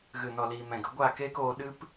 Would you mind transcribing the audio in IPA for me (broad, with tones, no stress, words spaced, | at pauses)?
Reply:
ɣɨ˨nɔ˨liː˨ mɛ̃˨ɡə˨˦ ɡʷaː˦˨keː˦k oː˧ɗɨ˦p